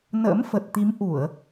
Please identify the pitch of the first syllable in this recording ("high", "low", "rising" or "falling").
rising